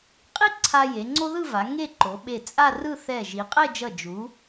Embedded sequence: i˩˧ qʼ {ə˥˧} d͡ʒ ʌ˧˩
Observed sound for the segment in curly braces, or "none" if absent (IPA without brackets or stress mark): ɛ˥˧